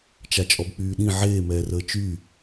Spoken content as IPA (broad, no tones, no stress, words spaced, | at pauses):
t͡ʃat͡ʃʼɔbk͡pyːɗĩ ʕeː mɛːrəːt͡ʃy